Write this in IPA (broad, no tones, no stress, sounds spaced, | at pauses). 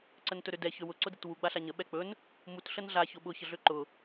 ǀ ə n t ɵ ɾ ø d ɛ ç ø w ʊ ǀ ʊ d ɛ t w u ɡ͡b a ɬ a ɲ ə ɓ ɛ k͡p ɵ n | m u t ɬ ə n ɮ a ç ʊ ɓ ʊ ç ə ɮ ø ǃ ʊ